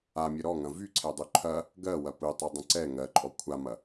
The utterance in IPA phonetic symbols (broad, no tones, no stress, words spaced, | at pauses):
amʲə ɾɔŋɐ̃ vyǀʰɛdˤy ǃʰɐ | ɡɜwɐ pɯtˤydˤə̃ ǀɛ ŋɜǃʼɔ kʷʰamɐ